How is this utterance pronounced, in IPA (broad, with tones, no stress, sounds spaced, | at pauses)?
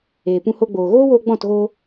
eː˨ p ũ˧ h o˧ ɡ͡b oː˨ ɣ oː˦ w oː˧ ɡ͡b ɔ̃˦˨ t ɣ o˧